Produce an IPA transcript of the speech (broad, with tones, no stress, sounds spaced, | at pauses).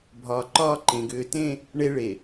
bʱ ɒː˨ ǃ ɒː˦ ǃ ẽ˨ ɡ ʏː˨ t ẽ˦ | ɳ e˦ ɭ e˨